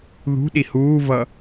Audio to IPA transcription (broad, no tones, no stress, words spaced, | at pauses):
ðṳɗi huːvʌ